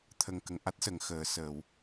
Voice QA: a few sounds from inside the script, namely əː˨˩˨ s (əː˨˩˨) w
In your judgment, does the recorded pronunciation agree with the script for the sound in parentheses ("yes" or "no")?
yes